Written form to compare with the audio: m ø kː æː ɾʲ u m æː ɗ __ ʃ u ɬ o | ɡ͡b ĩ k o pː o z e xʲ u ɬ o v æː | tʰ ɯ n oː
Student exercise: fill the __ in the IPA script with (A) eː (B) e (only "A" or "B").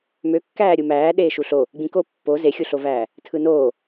A